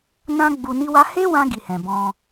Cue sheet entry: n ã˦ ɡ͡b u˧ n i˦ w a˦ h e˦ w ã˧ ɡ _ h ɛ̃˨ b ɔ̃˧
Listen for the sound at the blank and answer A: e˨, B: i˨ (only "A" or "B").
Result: B